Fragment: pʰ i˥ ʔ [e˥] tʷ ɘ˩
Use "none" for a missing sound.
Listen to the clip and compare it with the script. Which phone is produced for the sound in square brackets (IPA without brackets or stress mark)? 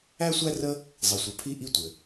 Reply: i˥